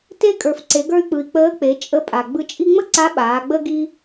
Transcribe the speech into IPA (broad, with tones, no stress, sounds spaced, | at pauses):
t e˥ kʼ ə˞˩ f ǀ e˩˧ ɡ ə˞˧ y̯ k͡p ɯ˩ i̯ k͡p əː˧˥ k͡p e˩˧ t͡ʃʼ ə˧˥ pʼ a˩ ɡ͡b ɯ˧ t͡ʃʼ i˥ ŋ͡m ə˥ ǀ a˧˥ ɓ aː˩˧ ɡ͡b ə˥ ɡ i˥